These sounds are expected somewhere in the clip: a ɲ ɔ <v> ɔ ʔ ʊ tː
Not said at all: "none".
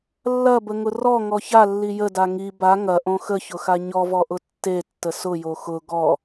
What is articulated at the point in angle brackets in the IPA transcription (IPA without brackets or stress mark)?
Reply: v